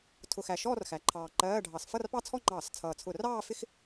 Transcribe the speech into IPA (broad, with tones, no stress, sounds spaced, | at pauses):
tʰ ʊ˧˩˧ x æ˨˩ ʃ ɔː˥˧ r x æ˩˥ ǃʰ ɑː˨˩ ǃ ɜː˧˥˧ ɖʱ ɑ˧˩˧ s f ʌ˥˧ r p ɑ˥˧ t͡sʰ ɔ˥˧ ŋ͡ǃ ɑː˧˩˧ s t͡sʰ ʌː˨˩ t͡sʰ ʊ˧˩˧ r ɑː˥˧ f ɪ˥˧ x